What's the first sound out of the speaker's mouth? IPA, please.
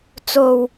t͡s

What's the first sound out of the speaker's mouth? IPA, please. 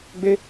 ɡ͡b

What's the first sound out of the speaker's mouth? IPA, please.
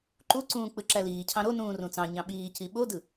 ǃ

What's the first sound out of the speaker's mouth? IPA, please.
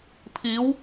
pʰ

